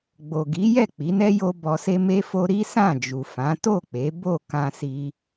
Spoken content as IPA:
ɡ͡b o˨ ɡ i˨˦ j ɛ˦˨ k͡p i˨˦ n ɛ˦ j o˦ b ɔ˧ s e˦ m e˦ f o˦ ɾ i˦ s ã˦˨ d͡ʒ u˨ f ã˨˦ t o˦˨ k͡p e˨˦ b o˦˨ k ã˧ s i˧

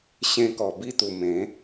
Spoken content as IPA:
ɕ ẽ˧ k ɔ˨˩ b i˥˧ t̪ u˨˩ m ẽ˨˦

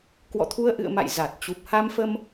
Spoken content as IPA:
k w ɔ̰˧˨ t̪ʰ u˧ ə̯ ʔ ɨ̰˧˨ ə̯ m a̰˧˨ j z a˨˩ t̚ t͡ɕ u˨˩ p̚ h a˧ m f ə˧ m

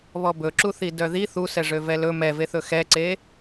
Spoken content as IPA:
β ɔ b ɵ ǁ u θ i d œ ð i θ u s ɛ ʐ ø v ɛ l ɵ m ɛ v e θ ɵ x ɛ ǀ e

